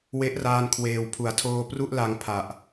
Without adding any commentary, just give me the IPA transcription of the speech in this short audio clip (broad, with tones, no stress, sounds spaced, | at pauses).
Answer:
w e˦˥ ʔ r aː˧ n kʰ w eː˨˩ w pʰ u˩˦ a̯ tʰ oː˧ p r u˥˩ ʔ l a˧ ŋ pʰ a˨˩ ʔ